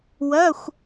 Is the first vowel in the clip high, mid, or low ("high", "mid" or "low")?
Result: low